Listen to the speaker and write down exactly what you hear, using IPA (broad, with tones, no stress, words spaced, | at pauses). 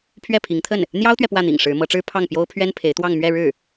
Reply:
pʰɥɛ˥˩pʰi˧˥ŋt̪ʰə˥˩n | n̪jɑ˥ʊ̯t̪ɥɛ˨ pwä˥˩n̪ḭ˨˩ŋ ʂɻ̩˧˥mɤ˧˥ʈ͡ʂɻ̩˥ pʰɑ˥˩ŋpjo˥ʊ̯ pʰɥɛ˥npʰe˧˥ɪ̯t̪wɑ˥˧ŋ mɥɛ˥˧ɻɻ̩˥˩